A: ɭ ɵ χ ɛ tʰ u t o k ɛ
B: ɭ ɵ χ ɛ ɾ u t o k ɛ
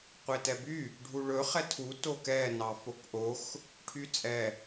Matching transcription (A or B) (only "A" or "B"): A